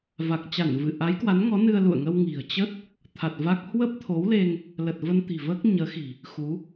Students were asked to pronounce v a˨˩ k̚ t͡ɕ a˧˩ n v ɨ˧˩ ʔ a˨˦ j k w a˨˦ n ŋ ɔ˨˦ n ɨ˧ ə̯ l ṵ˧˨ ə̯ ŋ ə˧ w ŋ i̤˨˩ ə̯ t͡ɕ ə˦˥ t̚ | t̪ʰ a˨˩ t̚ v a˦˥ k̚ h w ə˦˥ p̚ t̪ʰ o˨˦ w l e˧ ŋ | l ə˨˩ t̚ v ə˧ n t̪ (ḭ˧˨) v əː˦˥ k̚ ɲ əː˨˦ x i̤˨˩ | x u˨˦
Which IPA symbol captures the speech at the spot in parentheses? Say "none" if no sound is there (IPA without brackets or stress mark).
i̤˨˩